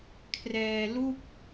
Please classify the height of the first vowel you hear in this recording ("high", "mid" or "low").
mid